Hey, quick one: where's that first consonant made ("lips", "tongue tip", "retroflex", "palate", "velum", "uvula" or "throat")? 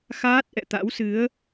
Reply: velum